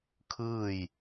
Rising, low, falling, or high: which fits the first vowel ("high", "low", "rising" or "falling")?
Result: falling